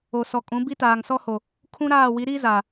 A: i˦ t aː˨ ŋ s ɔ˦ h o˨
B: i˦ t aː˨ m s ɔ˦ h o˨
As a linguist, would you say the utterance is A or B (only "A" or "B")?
A